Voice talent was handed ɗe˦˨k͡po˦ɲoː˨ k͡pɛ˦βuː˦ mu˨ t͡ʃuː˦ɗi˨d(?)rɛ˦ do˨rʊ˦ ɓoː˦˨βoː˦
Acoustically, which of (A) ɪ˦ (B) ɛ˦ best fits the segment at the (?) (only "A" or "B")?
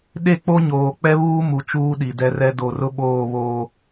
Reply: B